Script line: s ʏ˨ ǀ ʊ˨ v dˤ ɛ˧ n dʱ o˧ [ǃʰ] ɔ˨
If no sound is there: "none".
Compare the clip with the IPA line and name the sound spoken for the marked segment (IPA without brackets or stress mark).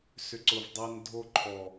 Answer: ǃʰ